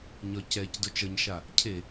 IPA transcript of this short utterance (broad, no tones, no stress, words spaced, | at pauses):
ɲɒcɛc dʊt͡ʃʌɲʃa | cʰe